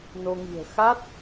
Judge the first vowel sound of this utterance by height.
mid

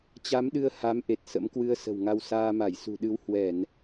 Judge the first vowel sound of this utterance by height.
low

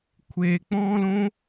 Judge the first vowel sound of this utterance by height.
mid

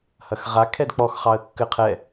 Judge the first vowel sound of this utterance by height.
low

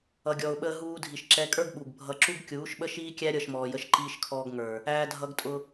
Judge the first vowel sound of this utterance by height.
mid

